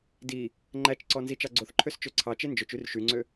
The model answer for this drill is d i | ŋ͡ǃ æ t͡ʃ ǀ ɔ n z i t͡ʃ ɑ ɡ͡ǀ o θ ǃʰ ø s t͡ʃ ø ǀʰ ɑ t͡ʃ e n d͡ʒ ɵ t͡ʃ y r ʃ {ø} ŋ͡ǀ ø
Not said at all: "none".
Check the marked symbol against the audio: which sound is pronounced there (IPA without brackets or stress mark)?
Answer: y